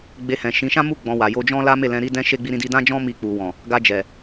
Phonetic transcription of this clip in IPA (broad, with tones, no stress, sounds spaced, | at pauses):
ɡ͡b e˧ h ɛ̃˨ ʃ ĩ˨˦ ʃ ã˦ m u˦˨ ɡ͡b ɔ̃˧ w a˨ j o˧ d͡ʒ ɔ̃˦ l a˦ m e˦˨ l ɛ̃˧ ɾ i˦ d ɛ̃˦ ʃ e˦ ɡ͡b i˦ ɾ ĩ˦ d i˦ d ã˦ d͡ʒ ɔ̃˦ m i˧ k͡p u˨ w ɔ̃˨ | ɡ a˧ d͡ʒ ɛ˨